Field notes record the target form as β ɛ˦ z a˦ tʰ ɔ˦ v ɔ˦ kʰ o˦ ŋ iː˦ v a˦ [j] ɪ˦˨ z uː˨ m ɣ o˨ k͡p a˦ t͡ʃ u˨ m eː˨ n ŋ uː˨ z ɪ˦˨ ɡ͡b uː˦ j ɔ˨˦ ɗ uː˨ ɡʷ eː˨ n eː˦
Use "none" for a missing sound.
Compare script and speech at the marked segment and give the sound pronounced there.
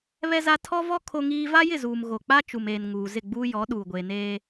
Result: j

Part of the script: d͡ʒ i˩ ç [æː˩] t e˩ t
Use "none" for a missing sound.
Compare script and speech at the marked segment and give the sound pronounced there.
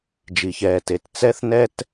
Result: ɛː˩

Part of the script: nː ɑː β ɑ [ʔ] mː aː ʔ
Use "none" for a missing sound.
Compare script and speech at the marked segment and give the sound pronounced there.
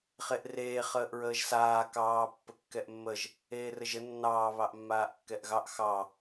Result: ʔ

